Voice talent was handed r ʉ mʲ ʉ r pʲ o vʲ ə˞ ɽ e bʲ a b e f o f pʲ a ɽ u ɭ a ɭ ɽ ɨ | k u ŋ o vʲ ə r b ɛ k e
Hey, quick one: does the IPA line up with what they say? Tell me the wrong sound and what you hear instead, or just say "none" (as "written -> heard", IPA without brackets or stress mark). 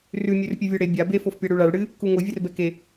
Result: none